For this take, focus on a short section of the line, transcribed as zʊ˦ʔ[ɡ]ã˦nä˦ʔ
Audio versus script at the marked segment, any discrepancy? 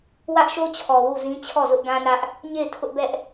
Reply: no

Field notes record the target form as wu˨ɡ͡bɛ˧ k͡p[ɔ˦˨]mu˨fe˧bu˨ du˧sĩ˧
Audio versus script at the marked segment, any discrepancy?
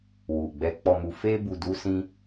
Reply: yes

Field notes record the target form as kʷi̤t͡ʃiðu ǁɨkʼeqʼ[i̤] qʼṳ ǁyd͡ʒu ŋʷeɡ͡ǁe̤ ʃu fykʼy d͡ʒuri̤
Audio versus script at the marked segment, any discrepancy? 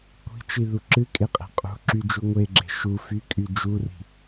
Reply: yes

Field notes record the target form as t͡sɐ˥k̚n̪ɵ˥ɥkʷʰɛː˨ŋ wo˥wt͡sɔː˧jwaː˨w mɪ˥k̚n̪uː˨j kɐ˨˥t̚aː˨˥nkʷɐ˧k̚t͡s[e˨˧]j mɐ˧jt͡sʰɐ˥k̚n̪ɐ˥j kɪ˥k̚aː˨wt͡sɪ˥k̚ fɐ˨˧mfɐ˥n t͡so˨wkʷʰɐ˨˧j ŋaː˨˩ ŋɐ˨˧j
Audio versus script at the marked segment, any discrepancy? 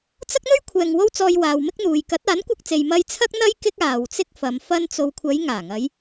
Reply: yes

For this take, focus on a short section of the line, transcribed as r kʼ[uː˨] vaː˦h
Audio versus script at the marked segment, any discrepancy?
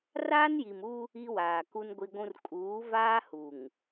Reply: yes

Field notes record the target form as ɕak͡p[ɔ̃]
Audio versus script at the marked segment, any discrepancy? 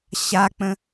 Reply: yes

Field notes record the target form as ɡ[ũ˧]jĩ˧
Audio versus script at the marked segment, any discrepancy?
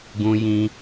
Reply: no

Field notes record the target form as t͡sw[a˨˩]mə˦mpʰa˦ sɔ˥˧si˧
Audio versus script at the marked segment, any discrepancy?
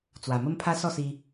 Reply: no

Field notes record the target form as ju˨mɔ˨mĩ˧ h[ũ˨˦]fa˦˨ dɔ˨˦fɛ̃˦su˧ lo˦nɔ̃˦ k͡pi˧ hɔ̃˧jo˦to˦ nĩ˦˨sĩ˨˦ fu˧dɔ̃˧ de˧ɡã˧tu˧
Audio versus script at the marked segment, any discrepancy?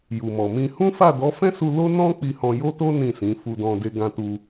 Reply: yes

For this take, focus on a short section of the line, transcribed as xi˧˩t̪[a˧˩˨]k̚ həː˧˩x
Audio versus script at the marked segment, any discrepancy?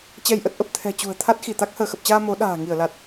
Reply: yes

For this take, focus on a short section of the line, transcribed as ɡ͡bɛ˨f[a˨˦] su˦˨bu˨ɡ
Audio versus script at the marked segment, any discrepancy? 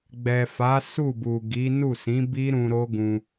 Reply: no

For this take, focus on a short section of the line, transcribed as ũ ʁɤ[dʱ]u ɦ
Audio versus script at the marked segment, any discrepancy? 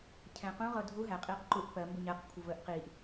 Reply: no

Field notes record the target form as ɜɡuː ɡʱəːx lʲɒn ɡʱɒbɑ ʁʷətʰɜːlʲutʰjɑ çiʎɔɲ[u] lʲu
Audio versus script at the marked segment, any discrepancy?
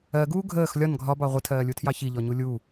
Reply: no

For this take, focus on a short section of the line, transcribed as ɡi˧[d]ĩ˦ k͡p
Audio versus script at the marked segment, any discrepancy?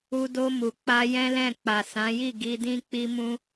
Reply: no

